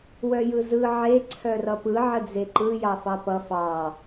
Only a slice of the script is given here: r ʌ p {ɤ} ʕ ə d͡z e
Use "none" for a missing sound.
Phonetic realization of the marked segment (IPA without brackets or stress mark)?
ɯ